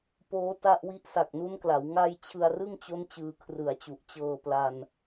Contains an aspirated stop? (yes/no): yes